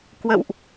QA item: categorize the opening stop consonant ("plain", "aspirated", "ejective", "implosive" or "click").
plain